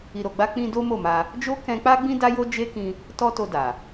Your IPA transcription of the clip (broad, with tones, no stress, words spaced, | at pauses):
i˧ɾo˧ɡ͡ba˦ k͡pĩ˧ do˦mo˦˨ma˧ | d͡ʒo˦kɛ̃˧k͡pa˦ɡ͡bĩ˦ da˦ jo˦d͡ʒe˦kĩ˧ | tɔ˦to˧ da˨